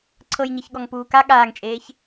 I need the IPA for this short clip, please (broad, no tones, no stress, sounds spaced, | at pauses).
ǀʰ ɤ j ɲ e ç ɠ ɔ ŋ p uː k a ɠ aː ŋ t͡ʃʼ eː ç